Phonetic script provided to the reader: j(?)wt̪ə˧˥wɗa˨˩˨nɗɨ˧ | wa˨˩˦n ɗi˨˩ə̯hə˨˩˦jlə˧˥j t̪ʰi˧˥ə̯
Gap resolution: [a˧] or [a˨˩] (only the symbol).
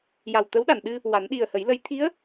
a˨˩